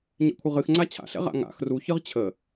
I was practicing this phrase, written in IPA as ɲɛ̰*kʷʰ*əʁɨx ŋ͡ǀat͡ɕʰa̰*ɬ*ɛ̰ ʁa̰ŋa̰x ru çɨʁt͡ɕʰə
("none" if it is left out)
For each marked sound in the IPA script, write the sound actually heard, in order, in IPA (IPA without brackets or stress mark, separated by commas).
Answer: kʷʰ, ɬ